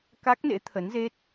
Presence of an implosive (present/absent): absent